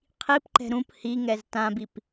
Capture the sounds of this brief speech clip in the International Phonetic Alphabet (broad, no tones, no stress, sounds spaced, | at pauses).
qʰ i p ǃ ɛ̤ ɾ ũ p h i ŋ ɛ z t ã b i p